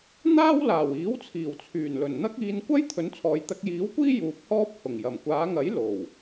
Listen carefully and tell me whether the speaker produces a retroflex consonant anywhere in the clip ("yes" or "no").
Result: no